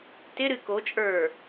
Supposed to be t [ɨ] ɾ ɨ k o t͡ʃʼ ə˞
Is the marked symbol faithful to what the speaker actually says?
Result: no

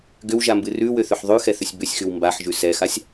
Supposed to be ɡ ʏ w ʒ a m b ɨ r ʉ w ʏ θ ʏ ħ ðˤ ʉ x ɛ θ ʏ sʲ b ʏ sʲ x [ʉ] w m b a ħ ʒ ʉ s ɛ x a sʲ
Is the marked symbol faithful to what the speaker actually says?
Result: yes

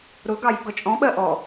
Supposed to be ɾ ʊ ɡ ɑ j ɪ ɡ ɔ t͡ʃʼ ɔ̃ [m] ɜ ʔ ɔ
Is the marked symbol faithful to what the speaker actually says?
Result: no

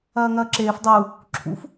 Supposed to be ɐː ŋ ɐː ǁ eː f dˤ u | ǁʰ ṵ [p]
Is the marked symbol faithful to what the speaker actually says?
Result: no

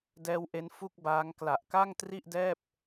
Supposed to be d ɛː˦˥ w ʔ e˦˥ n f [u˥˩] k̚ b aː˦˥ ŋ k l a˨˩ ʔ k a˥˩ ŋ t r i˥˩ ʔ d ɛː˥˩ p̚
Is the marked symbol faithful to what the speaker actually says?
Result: yes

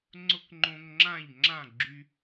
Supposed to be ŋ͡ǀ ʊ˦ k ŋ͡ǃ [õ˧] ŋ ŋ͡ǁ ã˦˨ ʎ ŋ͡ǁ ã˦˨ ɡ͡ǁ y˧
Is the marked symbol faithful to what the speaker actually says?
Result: yes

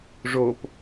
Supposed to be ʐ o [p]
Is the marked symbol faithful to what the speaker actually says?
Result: yes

